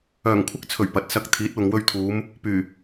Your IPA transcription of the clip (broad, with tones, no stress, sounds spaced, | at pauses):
œː˨˩ ŋ kʷʰ ɪ˧ k̚ t͡sʰ ɵ˨˩ ɥ p ɐ˨˥ t̚ s ɐ˧ k̚ t̪ʰ iː˨˥ t̚ w ʊ˨ ŋ w ɵ˧ ɥ t̪ʰ uː˨˧ m | p yː˨˩